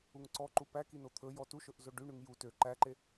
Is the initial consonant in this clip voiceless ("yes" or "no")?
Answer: no